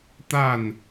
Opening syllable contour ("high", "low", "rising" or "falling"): falling